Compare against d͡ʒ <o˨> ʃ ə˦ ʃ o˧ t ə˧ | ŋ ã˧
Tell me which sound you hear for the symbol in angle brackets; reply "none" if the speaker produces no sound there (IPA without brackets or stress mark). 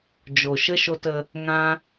o˨